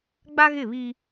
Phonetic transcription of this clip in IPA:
ɡ͡b a˦ ɣ ɪ˦˨ β i˦

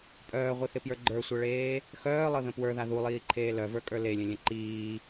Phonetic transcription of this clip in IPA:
pʼ œː ʁʷ i θ ɪ p j ə˞ ɡ͡ǃ ə˞ sʷ ɤ ɭ eː | x œː lˠ ɤ ð ə̃ p w ə˞ ð a ð u lˠ iː ǃʰ eː l œ v ə˞ kʼ ə˞ l e lʲ ə̃ lʲ ə̃ ǃ iː

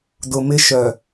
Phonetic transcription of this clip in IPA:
d ʊ˨ m ɪ˦ ʃ œ˨

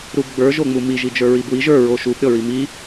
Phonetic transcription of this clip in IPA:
ɾ u b ɡ͡b ə˞ ʒ o ŋ͡m u m i ʒ i d͡ʒ ə˞ ɹ i b w i ʒ ə˞ ɹ o ʃ u b ɾʲ ɔ ɹ i m i

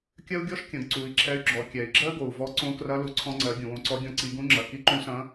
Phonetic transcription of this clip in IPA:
kʲ ɜ˥ u̯ ɡʲ ɔ˥ ʃ kʲ ɐ̃˩˧ ɡ ǀ u˩˧ i̯ ǁʰ ɛ˧˥ y̯ ɡ͡ǁ ɔ˩˧ kʲ ɛ˩ i̯ ɡ͡ǁ ɜ˥ ɡ o˩ u̯ v ɔ˧˥ ǀ õ˧˥ k r ɐ˧˥ l u˩˧ ǀʰ ɔ̃˧ ŋ͡ǀ ɜ˩˧ ɡʲ ũ˩ w õ˧ ǀ ɔ˧˥ ɡʲ ɔ̃˧˥ ǀ i˩˧ ɡ ũ˧˥ ŋ͡ǁ ɐ˩ k i˧˥ ǃ ũ˧˥ s ɐ̃˧˥

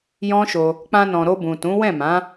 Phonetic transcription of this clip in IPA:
j ɔ̃˦ ʃ o˧ | k͡p ã˧ n ɔ̃˨ ɾ o˧ b ũ˨ t ũ˨˦ w ɛ̃˦˨ m ã˨˦

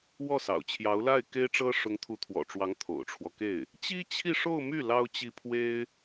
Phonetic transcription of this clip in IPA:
w ɔ˥˩ s ɑ̰˨˩ ʊ̯ t͡ɕʰ j ɑ˧˥ ʊ̯ l a˥˩ ɪ̯ k e˥ ɪ̯ ʈ͡ʂ ɤ˥ ʂ ʊ˧˥ ŋ t̪ʰ u˧˥ t̪ʰ w ɔ̰˨˩ ʈ͡ʂ w ɑ˧˥ ŋ t̪ʰ o̰˨˩ ʊ̯ ʈ͡ʂʰ w ɔ˦ k e˥˩ ɪ̯ | t͡ɕ i˥ t͡ɕʰ i˥˧ ʂ o˥˧ ʊ̯ m y˥˩ l ɑ˥ ʊ̯ t͡ɕ i˥ pʰ w e˥ ɪ̯

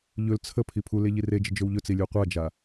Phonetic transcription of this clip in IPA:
ʎ ɵ l t͡sʰ ə pʰ i pʰ u l e ʎ i r e d͡ʒ ə d͡ʒ ɵ w ʎ ɵ t͡s i lʲ u qʷ a d͡ʒ a

